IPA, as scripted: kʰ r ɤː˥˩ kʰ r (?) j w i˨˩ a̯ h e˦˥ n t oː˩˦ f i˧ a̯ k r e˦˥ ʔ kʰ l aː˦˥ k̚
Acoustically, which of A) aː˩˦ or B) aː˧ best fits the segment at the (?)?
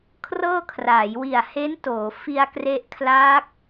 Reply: A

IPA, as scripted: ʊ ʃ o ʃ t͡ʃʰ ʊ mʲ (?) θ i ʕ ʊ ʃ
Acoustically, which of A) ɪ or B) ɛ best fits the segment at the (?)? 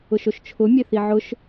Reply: B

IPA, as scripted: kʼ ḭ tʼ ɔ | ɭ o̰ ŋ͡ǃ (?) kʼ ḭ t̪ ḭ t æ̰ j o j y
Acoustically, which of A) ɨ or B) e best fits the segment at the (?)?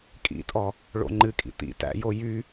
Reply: A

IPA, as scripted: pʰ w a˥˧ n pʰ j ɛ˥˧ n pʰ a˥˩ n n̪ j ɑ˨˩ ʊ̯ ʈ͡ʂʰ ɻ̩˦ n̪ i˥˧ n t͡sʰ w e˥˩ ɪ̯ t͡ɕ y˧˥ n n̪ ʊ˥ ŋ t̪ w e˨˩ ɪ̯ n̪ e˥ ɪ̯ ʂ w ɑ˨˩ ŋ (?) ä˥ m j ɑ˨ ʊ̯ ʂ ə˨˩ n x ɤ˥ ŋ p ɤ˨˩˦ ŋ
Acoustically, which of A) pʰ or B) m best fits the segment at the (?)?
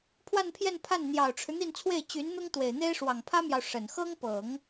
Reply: A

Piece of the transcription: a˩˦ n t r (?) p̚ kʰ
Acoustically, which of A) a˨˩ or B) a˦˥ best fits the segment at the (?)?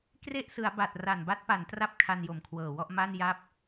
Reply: B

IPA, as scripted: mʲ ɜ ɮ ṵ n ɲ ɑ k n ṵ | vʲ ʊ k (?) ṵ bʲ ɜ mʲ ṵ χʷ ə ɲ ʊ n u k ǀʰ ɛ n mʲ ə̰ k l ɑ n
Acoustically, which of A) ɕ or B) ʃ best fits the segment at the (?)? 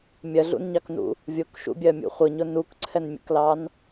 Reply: B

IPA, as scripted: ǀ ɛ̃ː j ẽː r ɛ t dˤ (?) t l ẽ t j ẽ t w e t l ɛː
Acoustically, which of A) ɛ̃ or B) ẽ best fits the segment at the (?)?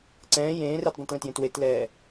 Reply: A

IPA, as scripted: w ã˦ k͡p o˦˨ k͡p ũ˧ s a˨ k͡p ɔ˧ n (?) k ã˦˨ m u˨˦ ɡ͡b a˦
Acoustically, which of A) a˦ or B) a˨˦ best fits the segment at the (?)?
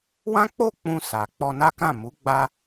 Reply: A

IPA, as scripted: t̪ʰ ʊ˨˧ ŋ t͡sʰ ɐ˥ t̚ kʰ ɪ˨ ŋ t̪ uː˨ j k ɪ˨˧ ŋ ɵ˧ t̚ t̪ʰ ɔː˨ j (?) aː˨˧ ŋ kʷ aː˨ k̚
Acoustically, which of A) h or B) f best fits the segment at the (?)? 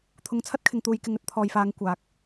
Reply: B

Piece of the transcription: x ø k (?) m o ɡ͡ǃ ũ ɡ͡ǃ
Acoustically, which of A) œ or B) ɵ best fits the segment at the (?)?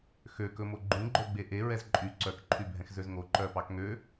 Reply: B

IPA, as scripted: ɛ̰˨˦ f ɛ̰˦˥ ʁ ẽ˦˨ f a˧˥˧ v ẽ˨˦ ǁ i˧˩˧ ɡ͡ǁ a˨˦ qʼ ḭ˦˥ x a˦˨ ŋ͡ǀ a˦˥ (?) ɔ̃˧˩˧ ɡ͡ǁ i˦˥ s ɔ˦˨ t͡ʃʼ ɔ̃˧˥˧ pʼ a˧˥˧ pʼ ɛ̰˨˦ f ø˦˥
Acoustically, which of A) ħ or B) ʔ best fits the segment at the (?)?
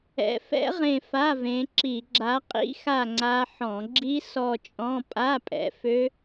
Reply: A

